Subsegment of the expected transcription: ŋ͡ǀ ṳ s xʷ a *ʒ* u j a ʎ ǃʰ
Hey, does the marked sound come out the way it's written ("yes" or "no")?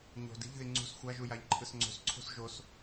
yes